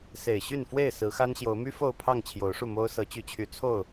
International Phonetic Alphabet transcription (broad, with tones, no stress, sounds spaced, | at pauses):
s e˨˩ ɪ̯ ɕ y˥˨ n f w e˥˨ ɪ̯ s ɹ̩˨˦ x a˦ n ɕ j o˨˦ ʊ̯ m y˦ f o˥˨ ʊ̯ pʰ ɑ˥˨ ŋ t͡ɕʰ j o˨˦ ʊ̯ ʂ u˥˨ m o˦ ʊ̯ s ɤ˨˦ t͡ɕ y˨˦ t͡ɕʰ y˨˦ t͡sʰ o˥˨ ʊ̯